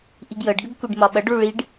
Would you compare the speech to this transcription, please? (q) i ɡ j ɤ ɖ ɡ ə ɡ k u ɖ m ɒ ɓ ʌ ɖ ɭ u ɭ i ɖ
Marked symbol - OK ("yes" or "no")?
no